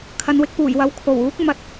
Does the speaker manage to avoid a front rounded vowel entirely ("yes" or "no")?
yes